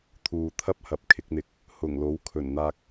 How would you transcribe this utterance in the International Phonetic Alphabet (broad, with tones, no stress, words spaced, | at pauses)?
t̪ʰuː˨t̪ʰɐ˥p̚hɐ˨p̚ kʰɪ˨˥k̚n̪ɪ˧k̚ | hʊ˨˩ŋlo˨˥w kʰɵ˨˩nn̪aː˧k̚